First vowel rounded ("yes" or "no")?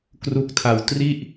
yes